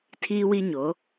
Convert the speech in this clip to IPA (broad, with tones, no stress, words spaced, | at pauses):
tʰiː˦wi˦ɲo˨˦